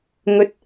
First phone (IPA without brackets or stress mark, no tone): ŋ